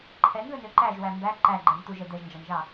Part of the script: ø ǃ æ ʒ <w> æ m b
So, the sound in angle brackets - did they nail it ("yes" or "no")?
yes